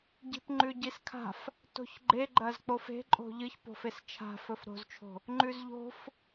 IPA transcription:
ɟ i̤ p ŋ͡ǃ ʉ ɟ i s kʰ a̤ f | t o̤ ç ɡ͡ǃ e ɡ͡ǃ ɐ z k͡p o f e̤ ǃʼ o̤ ʎ ɨ ç p o̤ f e s t͡ʃʰ a̤ f ɵ f ɾ o̤ z t͡ʃʰ o̤ | ŋ͡ǃ ʉ z ʎ o̤ f

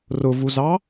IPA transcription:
r ʊ v u z ɑ

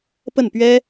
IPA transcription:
p ə˥˩ n p ɥ ɛ˥

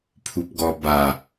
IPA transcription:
pʰ u p ɡ ɔ b a

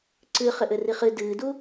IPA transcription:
ǀ ɨ χ ɘ ʔ ɘ r i χ ɨ d ɨː d u

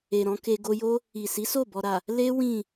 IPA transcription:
e˨ ɾ ɔ̃˨˦ k e˧ ɡ o˧ j o˦ | i˨ s i˨˦ s o˦˨ b ɔ˨ ɾ a˨ | l e˦ w ĩ˦˨

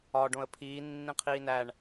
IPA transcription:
ɒ ɖ õ ə̯ pʰ iː nː ĩ qʰ iː n æ ɳ

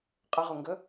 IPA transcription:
qʼ ə ʁ ʊ ŋ ɡ ə

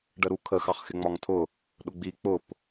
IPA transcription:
ɖ ə ɾ u kʰ ə x ɑ χ x ɪ ŋ͡m ɒ ŋ tʰ ʊ | ɗ ʊ ɡ͡b i k͡p ʊ p

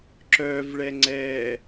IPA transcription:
ǁ œ v ɭ ɛ ŋ͡ǀ ɛ

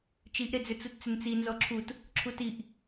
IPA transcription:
t͡ʃ i ʔ ɾ e d͡z ʏ t͡s u t t͡s ʏ n t͡s i n z ɔ ǁʰ u t | ǁʰ u t i ʔ

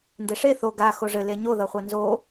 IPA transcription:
n d e ʂ e θ o ɡ a x o ʐ ɘ l e ɲ o ð ʌ χʷ a n z o

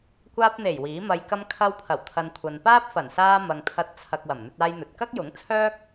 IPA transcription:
kʷ aː˧ p̚ n̪ e˨˩ j w iː˨˥ m ɐ˧ j k ɐ˧ m kʰ ɐ˧ w pʰ ɐ˨˩ w t̪ʰ ɐ˨ n kʷʰ ɐ˨ n p aː˥ p̚ f ɐ˨˩ n s aː˧ m ɐ˨ ŋ t̪ʰ ɐ˨˥ t̚ t͡sʰ ɐ˨ k̚ w ɐ˨˩ m n̪ ɵ˧ t̚ aː˧ j n̪ ɵ˨ t̚ k ɐ˥ k̚ j ʊ˨˥ ŋ t͡sʰ œː˥ k̚

